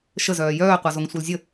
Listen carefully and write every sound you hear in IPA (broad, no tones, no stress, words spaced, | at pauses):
ʃəzœː jœːqʷazoŋ sʷœlzʲə